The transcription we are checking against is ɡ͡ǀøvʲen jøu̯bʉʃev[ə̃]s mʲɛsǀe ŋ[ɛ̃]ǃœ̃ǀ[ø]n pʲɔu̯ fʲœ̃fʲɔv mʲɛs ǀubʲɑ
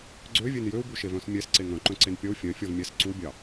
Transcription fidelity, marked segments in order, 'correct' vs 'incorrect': incorrect: œ̃, incorrect: œ̃, incorrect: e

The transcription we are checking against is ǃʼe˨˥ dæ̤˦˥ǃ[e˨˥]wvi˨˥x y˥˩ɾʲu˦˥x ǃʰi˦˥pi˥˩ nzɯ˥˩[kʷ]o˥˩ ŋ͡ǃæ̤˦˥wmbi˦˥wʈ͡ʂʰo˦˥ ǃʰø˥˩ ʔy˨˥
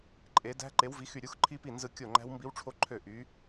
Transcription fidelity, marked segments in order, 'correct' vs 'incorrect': correct, incorrect: kʲ

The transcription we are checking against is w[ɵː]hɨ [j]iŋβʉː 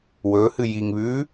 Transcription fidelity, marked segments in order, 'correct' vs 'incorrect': correct, correct

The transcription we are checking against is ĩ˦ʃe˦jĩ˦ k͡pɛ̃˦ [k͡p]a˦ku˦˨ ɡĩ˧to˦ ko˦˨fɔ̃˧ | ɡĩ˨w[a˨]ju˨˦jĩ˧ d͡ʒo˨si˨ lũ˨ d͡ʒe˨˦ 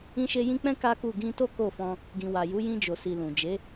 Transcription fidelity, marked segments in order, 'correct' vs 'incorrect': incorrect: k, correct

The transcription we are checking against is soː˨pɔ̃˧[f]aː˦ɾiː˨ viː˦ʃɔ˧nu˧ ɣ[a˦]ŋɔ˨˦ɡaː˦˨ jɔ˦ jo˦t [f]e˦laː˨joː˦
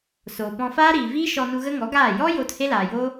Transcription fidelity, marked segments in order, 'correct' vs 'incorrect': correct, incorrect: ə˦, incorrect: h

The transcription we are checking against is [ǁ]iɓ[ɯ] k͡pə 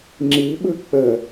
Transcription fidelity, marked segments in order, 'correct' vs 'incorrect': incorrect: ŋ͡ǁ, correct

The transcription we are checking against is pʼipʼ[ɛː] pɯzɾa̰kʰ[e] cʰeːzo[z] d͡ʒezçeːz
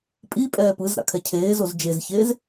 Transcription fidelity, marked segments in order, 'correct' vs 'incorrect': correct, incorrect: ɛ, correct

